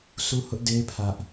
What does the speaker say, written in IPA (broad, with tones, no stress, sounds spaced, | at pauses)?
sʰ u˦ h ʊ˦ ʔ d e˦ ɪ̯ pʰ ä˦ ʔ